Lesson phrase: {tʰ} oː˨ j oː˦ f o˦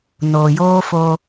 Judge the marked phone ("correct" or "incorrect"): incorrect